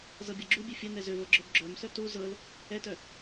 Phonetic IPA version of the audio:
z ɤ bʲ ɤ ɡ͡ǁ u bʲ ɛ fʲ ɤ n ɛ z ø v ɤ ɡ͡ǁ œ b ɡ͡ǁ œ m s œ t u z ɤ l | ɛ t œ

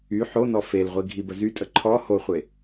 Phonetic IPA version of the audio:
y ħ o n ɔ f e l ʁʷ i ɡʱ i b ə z y tʼ ə ǃʰ ɔ h o χʷ e

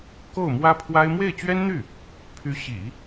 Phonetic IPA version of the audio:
k o˥˩ ʊ̯ m w ä˥ pʰ w a˥ ɪ̯ m w e˥˩ ɪ̯ t͡ɕ ɥ ɛ˥ n n̪ y˥˩ | pʰ y˧˥ ɕ ḭ˨˩˦

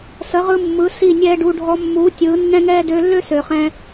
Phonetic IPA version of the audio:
s ə˨˦ ʁ ɯ˧ mː ɯ˨˦ s i˦˨ nʲ ɛː˦ ɖ u˧ ɖʱ ɔ˧ mː uː˨˦ tʲ ɯː˨˦ nː ɛ̃˦ ŋ ɛː˦ d øː˧ lː ø˦ s øː˨ χ ɛ̃ː˧

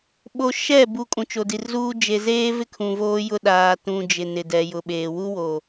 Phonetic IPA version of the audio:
ɓ o˨ ʃ ɛ˦˨ b u˨ kʼ ũ˨ t͡ʃ o˨ d i˨ r z uː˦ d͡ʒ e˨ z eː˦ v ɪ˦ kʰ ũ˨ v oː˦ j ʊ˦ ɗ aː˨ t ũ˨ d͡ʒ ɪ˨ n ɪ˨ d ɛ˨ j ʊ˨ ɓ eː˨ w u˦ w o˨

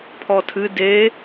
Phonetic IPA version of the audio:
pʰ ɔ tʰ ɨ d e

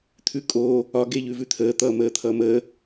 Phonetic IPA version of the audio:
t̪ʰ ʉ kʼ o | ɒ ɡ e ʎ ʉ v ʉ t̪ʰ əː t̪ ʌ m əː t̪ʰ ʌ m ə

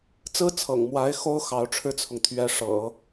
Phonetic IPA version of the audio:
t͡s ɹ̩˥ t͡sʰ ɤ̰˨˩ ŋ m w a˧˥ ɪ̯ x o˥ ʊ̯ x ɑ˧˥ ʊ̯ ʈ͡ʂʰ ɻ̩˥ t͡sʰ ʊ˨ ŋ t̪ʰ ɥ ɛ˧˥ ʂ ɤ̰˨˩˦

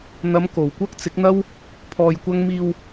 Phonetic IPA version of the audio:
n̪ ɐ˨˧ m k o˨˩ w kʷ ɐ˥ k̚ t͡s ɪ˨˥ k̚ n̪ ɐ˥ w | pʰ ɔː˧ j kʷ ɐ˥ ŋ m iː˧ w

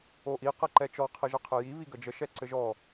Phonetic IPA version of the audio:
o ʔ i q ɛ ǃ ɛ t͡ʃ ɔ qʰ ɘ ʒ ə qʰ ɘ j i β i ɡ ə d͡ʒ ə ʃ ɛ ǀ ɘ ʒ ɔ

